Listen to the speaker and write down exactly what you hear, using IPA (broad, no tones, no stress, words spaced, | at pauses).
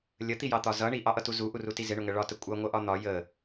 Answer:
lʲət̪ijɑt̪ɒ zʌ ɳiʔɑʔʌtu zuʔuruti zɪɳʊŋə ɭɒtə kʷʼʌŋʷʌʔɒ n̪ɒ jə